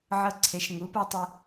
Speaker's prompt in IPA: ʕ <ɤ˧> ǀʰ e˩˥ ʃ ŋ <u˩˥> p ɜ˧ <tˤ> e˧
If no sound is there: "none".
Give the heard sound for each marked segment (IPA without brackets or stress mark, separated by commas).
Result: ɤ˧, u˩˥, tˤ